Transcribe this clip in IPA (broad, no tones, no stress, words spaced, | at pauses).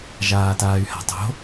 ʒaːtaːy̯ha̤tˤo̤